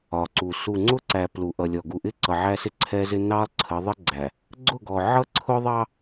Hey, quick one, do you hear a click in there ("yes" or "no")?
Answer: yes